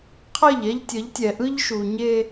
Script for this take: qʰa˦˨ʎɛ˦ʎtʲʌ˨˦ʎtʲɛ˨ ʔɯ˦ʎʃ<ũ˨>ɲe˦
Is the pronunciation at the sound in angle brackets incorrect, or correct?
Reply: incorrect: u˨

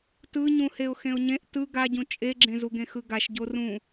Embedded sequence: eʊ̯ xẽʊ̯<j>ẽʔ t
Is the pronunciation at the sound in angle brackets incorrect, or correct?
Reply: incorrect: ɲ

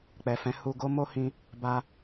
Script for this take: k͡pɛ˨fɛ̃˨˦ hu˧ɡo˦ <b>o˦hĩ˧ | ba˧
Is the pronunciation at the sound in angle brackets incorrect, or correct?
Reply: incorrect: m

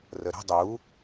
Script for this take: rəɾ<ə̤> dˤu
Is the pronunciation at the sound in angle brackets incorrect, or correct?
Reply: correct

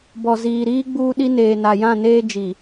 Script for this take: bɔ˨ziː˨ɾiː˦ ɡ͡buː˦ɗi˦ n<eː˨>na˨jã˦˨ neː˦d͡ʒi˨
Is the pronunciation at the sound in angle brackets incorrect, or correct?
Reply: correct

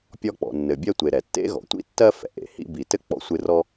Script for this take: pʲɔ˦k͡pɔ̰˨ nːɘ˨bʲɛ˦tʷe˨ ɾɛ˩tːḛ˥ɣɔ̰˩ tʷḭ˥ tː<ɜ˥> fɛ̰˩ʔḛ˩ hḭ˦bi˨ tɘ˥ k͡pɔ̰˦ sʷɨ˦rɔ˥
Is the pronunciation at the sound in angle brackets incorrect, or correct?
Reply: correct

